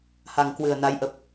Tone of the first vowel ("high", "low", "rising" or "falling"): low